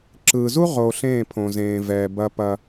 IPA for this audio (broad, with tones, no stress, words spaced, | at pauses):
ǁɯː˨zu˦ ʁo˨ɬẽː˦˨pʰõ˨ zẽː˨vɛː˨bɐ˦pɐ˦